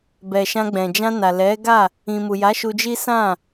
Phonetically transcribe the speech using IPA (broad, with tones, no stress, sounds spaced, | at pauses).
b ɛ˨ ʃ ã˧ ɡ͡b ɛ̃˨ d͡ʒ ã˧ n a˨ l ɛ˨˦ ɡ a˦˨ | ĩ˨ m u˨ j a˨˦ ʃ u˧ d͡ʒ i˦ s ã˦˨